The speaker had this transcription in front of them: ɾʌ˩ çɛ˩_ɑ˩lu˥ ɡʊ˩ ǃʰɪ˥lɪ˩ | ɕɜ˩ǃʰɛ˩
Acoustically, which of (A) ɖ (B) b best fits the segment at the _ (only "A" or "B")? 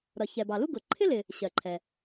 B